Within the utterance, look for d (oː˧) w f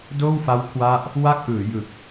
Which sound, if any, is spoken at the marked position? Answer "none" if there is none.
oː˥˩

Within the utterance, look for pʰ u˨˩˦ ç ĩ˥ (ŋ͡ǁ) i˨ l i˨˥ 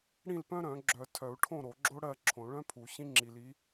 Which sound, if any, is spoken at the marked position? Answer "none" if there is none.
ŋ͡ǁ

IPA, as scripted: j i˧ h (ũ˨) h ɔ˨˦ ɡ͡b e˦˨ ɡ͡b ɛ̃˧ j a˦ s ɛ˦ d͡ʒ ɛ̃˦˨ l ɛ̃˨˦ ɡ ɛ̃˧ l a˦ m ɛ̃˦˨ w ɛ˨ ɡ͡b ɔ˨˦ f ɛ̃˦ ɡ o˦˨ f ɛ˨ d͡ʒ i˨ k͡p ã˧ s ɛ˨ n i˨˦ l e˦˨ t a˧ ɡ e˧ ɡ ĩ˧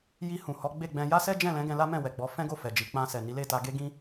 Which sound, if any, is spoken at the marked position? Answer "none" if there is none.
ũ˨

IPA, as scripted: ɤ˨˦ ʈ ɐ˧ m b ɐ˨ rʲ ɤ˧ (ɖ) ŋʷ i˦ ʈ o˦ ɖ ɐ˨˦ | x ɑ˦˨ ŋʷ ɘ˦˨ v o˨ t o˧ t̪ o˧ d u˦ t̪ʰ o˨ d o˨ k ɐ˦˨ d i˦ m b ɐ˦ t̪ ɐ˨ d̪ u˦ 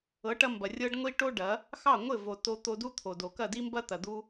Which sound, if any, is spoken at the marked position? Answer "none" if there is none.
ɖ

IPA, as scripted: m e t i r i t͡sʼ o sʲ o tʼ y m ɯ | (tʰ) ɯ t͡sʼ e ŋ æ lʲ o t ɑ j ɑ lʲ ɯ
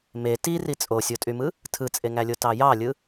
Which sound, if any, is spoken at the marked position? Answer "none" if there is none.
tʰ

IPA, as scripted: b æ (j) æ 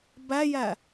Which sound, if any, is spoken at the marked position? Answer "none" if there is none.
j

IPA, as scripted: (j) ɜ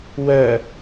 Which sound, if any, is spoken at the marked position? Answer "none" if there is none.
w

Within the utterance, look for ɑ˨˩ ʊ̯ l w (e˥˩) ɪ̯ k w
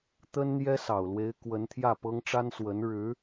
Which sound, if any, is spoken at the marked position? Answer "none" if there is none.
e˧˥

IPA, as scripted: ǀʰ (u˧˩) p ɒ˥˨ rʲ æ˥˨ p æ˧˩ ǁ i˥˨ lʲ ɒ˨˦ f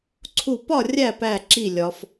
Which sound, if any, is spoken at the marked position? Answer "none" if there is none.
u˧˩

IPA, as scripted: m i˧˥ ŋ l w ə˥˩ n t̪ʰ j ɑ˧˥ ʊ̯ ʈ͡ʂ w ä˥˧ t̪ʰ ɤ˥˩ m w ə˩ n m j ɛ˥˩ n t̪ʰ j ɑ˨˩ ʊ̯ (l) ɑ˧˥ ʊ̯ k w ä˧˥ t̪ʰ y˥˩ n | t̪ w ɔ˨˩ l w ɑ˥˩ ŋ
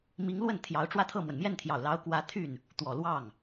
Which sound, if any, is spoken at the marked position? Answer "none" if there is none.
l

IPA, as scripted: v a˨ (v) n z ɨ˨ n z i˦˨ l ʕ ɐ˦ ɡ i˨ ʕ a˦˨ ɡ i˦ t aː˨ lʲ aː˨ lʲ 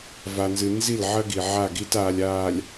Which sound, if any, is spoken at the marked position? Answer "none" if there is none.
none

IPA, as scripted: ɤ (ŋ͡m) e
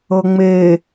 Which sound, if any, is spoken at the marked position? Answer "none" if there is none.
ŋ͡m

